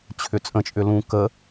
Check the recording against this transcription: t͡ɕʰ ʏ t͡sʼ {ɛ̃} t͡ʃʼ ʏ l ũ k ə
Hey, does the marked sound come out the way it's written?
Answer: no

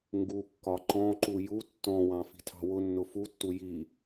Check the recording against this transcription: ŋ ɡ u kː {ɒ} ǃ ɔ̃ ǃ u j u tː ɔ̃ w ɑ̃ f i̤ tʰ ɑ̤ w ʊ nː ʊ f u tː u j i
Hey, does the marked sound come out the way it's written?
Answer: yes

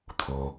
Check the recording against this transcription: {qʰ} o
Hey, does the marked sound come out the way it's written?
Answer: no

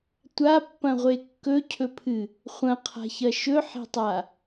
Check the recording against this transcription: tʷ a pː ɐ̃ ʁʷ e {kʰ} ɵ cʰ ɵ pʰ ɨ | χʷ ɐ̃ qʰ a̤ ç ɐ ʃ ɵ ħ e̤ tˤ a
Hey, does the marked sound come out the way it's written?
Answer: no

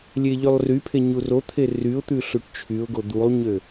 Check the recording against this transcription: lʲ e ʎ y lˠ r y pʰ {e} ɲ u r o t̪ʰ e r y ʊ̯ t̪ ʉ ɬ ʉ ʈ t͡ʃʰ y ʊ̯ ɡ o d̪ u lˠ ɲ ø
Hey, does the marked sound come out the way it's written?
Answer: yes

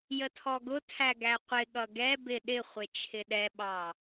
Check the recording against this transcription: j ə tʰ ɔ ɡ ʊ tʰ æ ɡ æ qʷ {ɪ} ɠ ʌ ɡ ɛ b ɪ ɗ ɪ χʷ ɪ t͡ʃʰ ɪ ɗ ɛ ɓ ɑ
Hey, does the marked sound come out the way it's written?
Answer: yes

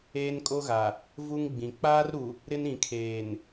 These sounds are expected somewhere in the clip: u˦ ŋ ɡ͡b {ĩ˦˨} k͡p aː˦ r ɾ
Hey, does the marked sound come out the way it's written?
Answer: no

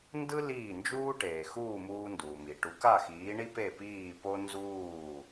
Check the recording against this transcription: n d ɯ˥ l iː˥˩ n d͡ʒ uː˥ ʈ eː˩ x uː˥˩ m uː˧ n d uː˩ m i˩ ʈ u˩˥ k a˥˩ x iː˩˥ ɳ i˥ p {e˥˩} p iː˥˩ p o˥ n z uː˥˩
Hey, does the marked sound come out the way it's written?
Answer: yes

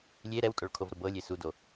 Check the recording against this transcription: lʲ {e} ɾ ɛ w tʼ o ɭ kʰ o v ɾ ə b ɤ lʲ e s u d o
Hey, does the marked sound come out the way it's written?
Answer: yes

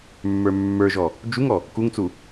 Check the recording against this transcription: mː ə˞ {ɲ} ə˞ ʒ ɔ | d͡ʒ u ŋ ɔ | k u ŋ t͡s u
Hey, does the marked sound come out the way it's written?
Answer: no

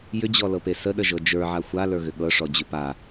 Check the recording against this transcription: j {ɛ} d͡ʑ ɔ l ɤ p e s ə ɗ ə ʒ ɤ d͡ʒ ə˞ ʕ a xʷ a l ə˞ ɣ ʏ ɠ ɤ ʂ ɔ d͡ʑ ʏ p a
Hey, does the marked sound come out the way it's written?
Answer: no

